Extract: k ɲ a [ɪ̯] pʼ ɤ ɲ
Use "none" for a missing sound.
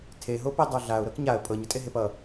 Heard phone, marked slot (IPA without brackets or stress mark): ə̯